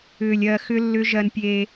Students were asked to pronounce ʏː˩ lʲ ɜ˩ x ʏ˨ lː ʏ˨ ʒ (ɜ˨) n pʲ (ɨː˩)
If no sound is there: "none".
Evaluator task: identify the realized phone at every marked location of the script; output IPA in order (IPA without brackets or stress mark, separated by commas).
ɜ˩, eː˩